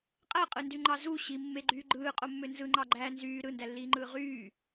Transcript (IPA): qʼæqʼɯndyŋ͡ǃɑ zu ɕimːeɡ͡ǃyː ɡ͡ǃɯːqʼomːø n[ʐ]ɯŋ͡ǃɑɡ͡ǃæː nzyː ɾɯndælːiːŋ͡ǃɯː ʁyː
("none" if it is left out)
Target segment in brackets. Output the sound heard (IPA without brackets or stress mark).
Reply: z